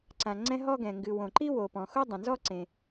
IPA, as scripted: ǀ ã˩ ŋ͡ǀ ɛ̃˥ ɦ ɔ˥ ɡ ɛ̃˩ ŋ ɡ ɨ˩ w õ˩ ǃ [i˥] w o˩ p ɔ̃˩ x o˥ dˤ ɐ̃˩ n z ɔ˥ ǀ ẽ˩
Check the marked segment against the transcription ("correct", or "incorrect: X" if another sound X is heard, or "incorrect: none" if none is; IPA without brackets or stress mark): correct